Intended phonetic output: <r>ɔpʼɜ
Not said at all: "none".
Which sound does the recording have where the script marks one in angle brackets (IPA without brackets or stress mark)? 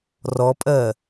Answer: r